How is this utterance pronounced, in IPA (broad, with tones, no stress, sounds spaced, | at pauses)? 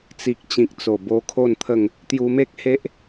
t͡s i˨ k̚ t͡ɕ ĩ˨ k̚ t͡s o˨˩ b o˧ kʰ o˥˧ n t̪ʰ ə˥˧ ŋ | t̪ j u˧ m e˦ k̚ h e˦ ʔ